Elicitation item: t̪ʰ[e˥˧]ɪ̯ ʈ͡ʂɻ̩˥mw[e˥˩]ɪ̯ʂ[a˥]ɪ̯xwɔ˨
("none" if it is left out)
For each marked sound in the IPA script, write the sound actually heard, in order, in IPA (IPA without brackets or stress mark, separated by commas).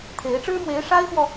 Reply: e˧˥, e˧˥, a˥